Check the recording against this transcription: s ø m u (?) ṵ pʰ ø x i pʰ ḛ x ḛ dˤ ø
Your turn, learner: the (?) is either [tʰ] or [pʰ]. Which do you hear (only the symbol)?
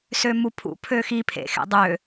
pʰ